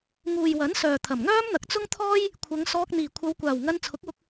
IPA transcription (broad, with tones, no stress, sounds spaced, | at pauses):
ŋ uː˨ j w ɐ˨˥ n s œː˨ t̪ʰ ɐ˨˩ m ŋ œː˥ m n̪ ɐ˨˥ k̚ t͡s ʊ˥ ŋ t̪ʰ ɔː˥ j | kʷʰ ɐ˨˧ ŋ s ɔː˧ k̚ n̪ iː˨˩ kʷʰ ɐ˨˧ w kʷ aː˨˩ w ŋ ɐ˧ n t͡sʰ ʊ˨˥ k̚ w ʊ˧ k̚